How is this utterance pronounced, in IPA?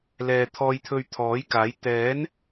lɛː˨t̪ʰɔː˧j t̪ʰɵ˧ɥt̪ʰɔː˨˥jkaː˨˥j t̪ɛː˨˥n

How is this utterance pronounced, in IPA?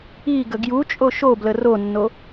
iɡə ɡjut͡ʃʼo ʃoblə ronːo

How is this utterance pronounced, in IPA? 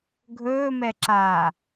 ɡʱɵːmɛǁaː

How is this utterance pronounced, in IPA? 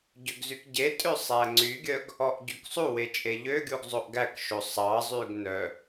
ɟøɡzykɟetʼø sˤæŋ͡ǀyɡʲœɡ | ɔʔɟyksˤuwe t͡ʃʼeʎøɡʲuɡ zˤoʔɡækʃo sˤɑzˤyɡ nœ

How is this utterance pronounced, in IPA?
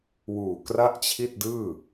wuː˨˩kra˥˩ʔt͡ɕʰi˥˩t̚dɯː˥˩

